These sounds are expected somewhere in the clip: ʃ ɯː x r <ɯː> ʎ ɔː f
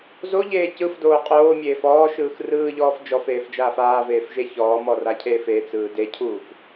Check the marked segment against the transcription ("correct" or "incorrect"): correct